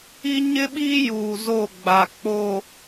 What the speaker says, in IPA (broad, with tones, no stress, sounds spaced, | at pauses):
i˦ ɲ ɪ˦ ɓ iː˦ j uː˨ z o˦˨ ɡ͡b a˨ k͡p o˨